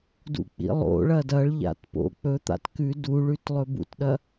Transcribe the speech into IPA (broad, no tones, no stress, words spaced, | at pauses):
dṵk͡pḭlˠo̰ɭɐ dɐɭʎa̰t po̰ k͡pɵt̪a̰t kʉ duɭʉt lˠɵbṵtɗɐ